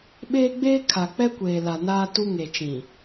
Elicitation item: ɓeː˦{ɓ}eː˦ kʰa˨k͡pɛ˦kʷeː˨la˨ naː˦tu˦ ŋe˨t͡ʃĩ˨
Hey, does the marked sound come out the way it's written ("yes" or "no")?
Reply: no